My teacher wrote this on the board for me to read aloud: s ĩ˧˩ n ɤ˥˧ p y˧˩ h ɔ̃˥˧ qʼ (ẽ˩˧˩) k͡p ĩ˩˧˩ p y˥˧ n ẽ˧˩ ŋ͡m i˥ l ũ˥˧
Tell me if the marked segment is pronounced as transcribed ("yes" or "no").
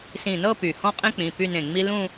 no